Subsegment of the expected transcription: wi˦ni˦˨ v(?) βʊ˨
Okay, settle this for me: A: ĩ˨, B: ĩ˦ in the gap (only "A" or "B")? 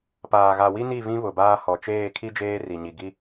B